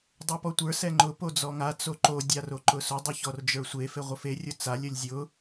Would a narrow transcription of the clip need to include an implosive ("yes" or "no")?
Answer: no